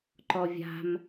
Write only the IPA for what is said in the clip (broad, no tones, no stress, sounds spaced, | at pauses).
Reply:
ǃ ɔ vʲ a̤ m